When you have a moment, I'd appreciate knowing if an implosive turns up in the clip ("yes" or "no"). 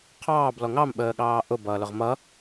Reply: yes